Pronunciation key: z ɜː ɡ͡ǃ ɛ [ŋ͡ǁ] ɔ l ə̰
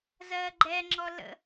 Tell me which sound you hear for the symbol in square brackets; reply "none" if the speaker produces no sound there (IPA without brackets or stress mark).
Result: ŋ͡ǁ